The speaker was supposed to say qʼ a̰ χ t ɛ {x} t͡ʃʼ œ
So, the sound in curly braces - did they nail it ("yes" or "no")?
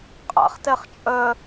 no